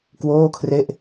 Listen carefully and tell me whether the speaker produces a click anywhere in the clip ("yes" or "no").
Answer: no